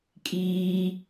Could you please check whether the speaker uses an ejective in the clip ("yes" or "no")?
yes